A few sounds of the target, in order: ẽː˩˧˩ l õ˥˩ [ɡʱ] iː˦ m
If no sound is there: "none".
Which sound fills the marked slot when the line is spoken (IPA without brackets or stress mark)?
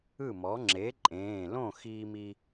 x